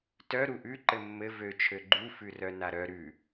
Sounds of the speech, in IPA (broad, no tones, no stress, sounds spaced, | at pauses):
t œ ɾ u ʔ ʉ ǃ ɘ mː ɘ v ø t͡ʃʰ ø ɡ͡ǃ u f ʉ r œ n a ɾ œ ɾ ʉ